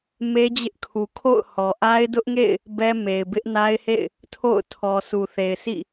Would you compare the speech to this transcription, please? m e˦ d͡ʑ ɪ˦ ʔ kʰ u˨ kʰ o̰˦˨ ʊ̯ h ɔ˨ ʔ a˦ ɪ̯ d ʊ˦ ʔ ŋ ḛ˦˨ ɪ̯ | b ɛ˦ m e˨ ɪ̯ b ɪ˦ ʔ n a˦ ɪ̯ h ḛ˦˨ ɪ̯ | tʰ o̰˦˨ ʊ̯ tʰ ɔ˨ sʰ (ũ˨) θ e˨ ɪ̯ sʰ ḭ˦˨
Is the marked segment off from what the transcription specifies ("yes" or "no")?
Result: yes